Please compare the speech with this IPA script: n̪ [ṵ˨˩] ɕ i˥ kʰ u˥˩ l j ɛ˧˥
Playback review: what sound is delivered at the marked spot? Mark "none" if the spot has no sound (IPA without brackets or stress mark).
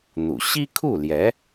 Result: ṵ˨˩